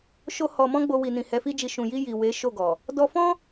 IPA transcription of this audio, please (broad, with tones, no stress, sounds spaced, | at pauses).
ʃ o˦ h ɔ˧ m ɔ̃˦ ɡ͡b o˧ w i˨ n ĩ˨ h ɛ˨˦ f i˦ d͡ʒ i˧ ʃ ũ˨ j i˧ j i˨ w e˨˦ ʃ o˦˨ ɡ ɔ˨ | d ɔ˧ f ɔ̃˦